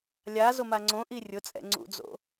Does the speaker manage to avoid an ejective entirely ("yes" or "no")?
no